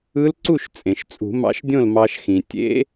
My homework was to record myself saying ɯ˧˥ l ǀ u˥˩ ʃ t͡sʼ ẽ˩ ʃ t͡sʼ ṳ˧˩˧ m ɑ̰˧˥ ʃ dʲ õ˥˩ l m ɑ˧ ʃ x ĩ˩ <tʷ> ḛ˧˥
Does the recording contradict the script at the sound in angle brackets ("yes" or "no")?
yes